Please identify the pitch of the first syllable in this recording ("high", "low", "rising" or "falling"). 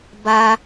high